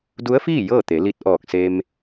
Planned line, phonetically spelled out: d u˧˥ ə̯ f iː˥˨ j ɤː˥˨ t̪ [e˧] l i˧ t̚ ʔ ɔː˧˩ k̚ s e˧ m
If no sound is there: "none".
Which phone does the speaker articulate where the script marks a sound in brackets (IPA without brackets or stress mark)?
e˩˧